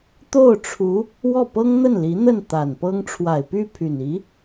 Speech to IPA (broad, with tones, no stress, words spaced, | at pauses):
t̪o˥˩ʊ̯ʈ͡ʂʰu˧˥ | wɔ˥˩pɤ˥ŋ n̪ə˥˩nli˧˥n̪ə˥˩n t̪a˨˩npɤ˥ŋ ʈ͡ʂʰwa˨˩ɪ̯py˥˩pʰy˨˩n i˧˥